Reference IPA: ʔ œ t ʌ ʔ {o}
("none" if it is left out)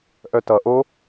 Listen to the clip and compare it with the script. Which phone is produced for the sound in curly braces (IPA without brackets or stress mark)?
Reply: o